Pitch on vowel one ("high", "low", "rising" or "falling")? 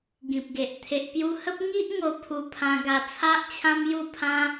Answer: low